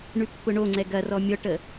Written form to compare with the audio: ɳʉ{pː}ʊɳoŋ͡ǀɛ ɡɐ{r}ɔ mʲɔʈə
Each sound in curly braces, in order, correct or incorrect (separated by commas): correct, correct